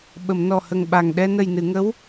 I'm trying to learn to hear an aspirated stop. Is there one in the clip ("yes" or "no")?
no